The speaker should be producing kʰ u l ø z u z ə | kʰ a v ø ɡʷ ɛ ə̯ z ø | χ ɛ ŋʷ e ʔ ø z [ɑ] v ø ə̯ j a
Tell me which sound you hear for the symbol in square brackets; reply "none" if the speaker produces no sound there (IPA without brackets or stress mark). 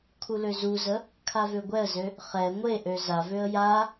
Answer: a